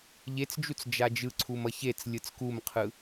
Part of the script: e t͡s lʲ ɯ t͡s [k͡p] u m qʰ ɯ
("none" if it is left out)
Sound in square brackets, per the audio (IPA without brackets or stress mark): k